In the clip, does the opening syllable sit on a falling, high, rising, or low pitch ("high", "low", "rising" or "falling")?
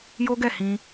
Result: high